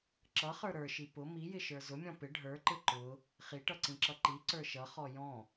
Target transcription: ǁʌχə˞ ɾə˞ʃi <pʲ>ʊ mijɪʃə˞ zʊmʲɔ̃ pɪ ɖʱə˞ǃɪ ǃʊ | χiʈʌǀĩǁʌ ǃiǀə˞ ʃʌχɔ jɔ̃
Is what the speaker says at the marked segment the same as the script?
no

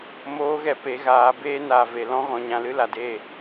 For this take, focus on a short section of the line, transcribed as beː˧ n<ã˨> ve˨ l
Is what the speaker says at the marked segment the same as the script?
no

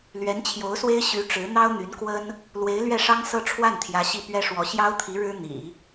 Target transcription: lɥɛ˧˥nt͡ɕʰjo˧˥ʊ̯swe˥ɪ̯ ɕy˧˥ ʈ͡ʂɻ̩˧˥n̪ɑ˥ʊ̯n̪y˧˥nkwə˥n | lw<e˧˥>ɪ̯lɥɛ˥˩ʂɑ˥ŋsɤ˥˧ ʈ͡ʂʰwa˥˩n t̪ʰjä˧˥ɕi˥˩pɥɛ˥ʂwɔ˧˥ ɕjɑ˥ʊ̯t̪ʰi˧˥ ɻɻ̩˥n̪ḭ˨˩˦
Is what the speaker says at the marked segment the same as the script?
yes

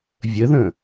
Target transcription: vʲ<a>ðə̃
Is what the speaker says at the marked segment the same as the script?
no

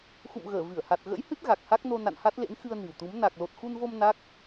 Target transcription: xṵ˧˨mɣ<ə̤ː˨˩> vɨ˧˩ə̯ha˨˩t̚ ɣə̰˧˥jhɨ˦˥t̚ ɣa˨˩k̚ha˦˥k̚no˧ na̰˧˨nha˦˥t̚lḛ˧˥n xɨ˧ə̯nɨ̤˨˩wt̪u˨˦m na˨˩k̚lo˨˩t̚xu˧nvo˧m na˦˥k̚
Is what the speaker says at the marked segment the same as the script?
no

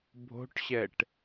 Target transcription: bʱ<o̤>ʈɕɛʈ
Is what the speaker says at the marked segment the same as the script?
yes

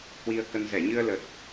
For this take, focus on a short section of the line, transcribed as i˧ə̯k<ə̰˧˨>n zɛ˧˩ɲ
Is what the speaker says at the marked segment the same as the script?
no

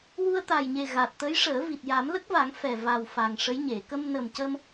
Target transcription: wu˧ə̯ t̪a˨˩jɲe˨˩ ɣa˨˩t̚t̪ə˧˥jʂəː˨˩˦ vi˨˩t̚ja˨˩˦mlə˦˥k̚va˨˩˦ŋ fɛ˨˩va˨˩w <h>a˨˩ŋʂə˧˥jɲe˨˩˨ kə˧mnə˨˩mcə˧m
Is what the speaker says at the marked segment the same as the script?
no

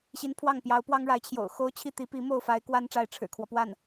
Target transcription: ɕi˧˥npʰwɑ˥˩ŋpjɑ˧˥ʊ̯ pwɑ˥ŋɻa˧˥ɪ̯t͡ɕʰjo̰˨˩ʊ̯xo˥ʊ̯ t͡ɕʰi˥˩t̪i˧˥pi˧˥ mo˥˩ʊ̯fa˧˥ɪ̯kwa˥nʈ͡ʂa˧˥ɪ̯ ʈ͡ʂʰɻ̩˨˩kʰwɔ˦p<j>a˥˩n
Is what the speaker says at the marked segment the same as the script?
no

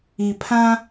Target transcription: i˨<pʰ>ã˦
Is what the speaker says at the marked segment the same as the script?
yes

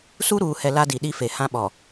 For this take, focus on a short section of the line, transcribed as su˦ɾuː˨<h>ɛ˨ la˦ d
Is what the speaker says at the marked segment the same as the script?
yes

